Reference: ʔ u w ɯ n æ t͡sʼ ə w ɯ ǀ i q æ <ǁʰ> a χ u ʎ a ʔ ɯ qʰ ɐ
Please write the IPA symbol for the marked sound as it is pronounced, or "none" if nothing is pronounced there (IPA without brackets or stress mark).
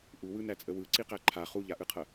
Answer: ǃʰ